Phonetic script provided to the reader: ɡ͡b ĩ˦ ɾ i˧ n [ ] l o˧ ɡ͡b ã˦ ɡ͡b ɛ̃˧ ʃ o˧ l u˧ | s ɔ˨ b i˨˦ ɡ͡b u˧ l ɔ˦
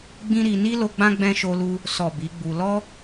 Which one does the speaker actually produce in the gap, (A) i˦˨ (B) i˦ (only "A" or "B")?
B